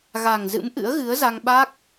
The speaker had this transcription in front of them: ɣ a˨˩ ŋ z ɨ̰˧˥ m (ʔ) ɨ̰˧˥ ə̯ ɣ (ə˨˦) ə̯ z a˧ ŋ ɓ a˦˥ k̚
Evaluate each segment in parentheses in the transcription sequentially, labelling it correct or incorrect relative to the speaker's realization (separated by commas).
correct, incorrect